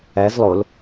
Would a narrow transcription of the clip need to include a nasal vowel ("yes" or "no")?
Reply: no